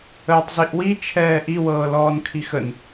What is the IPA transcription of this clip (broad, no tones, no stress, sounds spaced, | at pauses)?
əː tˤ z i ʔ w i t͡ʃʰ ɛː ʔ i w ɤː l ɔː n kʰ i x ə n